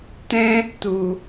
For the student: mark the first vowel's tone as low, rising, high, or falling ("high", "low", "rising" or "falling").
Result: high